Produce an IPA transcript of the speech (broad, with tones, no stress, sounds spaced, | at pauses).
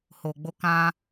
h o˨ ɡ͡b o˧ k ã˧